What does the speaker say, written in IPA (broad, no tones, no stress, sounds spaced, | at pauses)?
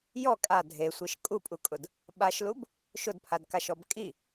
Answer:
j ɔ kʼ a dʱ e sʷ e ʃ kʼ u pʼ u kʼ ʊ d | ɓ a ʃ l u b | ʃ ʊ d pʰ a d k a ʃ ɔ b kʼ i